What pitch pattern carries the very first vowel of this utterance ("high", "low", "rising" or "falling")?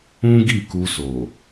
high